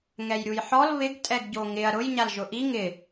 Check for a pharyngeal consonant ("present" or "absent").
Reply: present